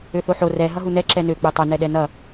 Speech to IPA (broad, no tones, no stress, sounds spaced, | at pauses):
ø θ o ħ o r ɛ ɦ ʌ ɦ u n ɛ ǁ ɛ n ø k͡p ø tˤ ʊ n ɛ ɗ ɛ n ʌ